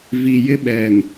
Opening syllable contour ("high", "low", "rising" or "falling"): low